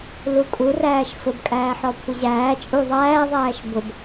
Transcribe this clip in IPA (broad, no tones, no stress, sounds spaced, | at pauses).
l u kʼ u r æː ʃ f ʊ b kʼ æː ħ ɔ kʷʰ ə ʑ æː t͡ʃʼ u ðˤ æː ðˤ æː ʃ b ʊ b